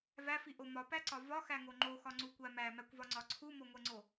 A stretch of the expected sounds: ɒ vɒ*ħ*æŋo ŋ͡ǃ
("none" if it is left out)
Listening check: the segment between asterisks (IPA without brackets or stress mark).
x